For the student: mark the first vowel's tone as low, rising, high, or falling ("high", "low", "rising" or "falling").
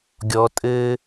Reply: low